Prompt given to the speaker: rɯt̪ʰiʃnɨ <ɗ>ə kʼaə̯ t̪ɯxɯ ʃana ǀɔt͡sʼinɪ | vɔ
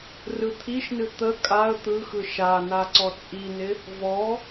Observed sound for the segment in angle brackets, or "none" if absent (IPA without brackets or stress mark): t̪